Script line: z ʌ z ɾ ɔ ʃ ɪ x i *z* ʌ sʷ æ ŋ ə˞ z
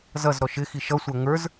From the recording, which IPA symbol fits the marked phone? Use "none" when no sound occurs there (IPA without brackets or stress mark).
ʃ